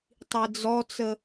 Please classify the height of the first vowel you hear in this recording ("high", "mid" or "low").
high